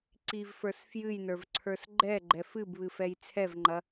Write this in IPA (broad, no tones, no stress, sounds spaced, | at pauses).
ǀ i v f ə˞ s f j ɨ j n ə˞ v ǀʰ ə˞ s ɡ͡ǃ ɛ ɡ͡ǃ ɛ f ɨ b β ɨ f ɛ j t͡sʰ ɛ v ŋ͡ǃ ɐ